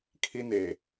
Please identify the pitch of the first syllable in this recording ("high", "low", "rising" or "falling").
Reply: high